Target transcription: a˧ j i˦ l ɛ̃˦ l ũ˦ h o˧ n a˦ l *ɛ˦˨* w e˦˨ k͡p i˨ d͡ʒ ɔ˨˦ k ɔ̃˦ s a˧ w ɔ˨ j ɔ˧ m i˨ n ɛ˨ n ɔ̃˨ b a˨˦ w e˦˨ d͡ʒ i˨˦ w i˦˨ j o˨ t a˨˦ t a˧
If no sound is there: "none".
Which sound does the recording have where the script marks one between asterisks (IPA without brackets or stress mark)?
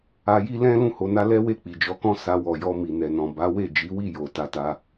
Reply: ɛ˦